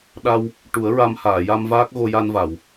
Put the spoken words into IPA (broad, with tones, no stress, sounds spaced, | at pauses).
ɗ a˧ w | ʈ u˨˩˦ ə̯ ɹ a˧ m h aː˨˩˨ j a˧ m v aː˦˥ k̚ ɣ o˧ j a˧ n v a˨˩˨ w